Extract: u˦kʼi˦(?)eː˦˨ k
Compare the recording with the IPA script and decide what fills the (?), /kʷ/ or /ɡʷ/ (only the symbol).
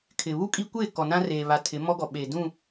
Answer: kʷ